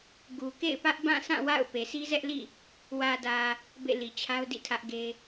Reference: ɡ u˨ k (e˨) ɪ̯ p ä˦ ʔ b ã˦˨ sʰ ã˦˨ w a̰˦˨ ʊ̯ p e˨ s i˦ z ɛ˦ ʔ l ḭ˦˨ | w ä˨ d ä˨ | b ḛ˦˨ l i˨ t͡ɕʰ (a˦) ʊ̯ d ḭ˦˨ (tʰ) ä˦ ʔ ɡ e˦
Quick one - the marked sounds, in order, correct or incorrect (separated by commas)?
incorrect, correct, correct